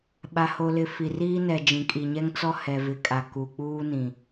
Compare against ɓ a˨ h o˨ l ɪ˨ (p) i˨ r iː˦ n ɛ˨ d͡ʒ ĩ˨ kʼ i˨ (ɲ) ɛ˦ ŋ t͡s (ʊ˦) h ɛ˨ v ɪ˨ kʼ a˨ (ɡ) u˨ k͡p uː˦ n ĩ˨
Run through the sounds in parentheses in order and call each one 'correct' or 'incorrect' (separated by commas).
incorrect, correct, incorrect, incorrect